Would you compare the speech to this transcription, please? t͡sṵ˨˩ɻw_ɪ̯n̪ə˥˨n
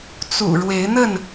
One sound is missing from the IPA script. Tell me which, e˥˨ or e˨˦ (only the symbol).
e˨˦